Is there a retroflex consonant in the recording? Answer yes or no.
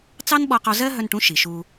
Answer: yes